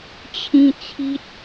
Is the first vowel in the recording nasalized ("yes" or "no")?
yes